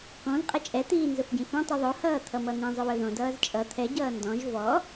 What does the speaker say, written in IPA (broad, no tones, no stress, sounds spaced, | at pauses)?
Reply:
k ɔ̃ z qʼ ʌ t͡ʃʼ ɛ t̪ iː n z ʊ f ɟ ĩ f õ tˤ i ðˤ o h ʌː t̪ʰ ʌ m ʌ n̪ ĩ zˤ ʊ w ɵ ð õ d ʌː z t͡ʃʼ ʌ t̪ʰ ɛ ɟ ʌː n d ɔ̃ ʒ v ɔ